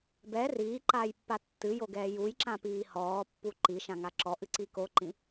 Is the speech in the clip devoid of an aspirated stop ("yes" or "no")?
yes